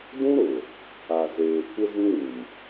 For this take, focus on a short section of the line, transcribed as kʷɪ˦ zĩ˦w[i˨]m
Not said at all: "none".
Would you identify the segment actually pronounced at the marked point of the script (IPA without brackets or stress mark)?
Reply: ĩ˨